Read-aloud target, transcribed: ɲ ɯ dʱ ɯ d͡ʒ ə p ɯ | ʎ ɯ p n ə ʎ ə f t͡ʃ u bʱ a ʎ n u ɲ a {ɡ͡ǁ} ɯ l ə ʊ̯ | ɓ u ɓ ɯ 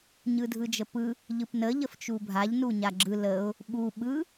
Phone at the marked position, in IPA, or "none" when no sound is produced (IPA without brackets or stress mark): ɡ͡ǁ